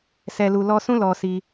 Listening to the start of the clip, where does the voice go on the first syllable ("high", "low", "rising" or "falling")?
low